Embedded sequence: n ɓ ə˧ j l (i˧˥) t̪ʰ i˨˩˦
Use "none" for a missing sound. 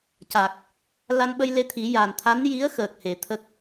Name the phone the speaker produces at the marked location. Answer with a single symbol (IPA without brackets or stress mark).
e˧˥